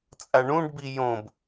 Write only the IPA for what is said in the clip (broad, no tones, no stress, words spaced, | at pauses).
t͡sʼaɳũɖbi jõb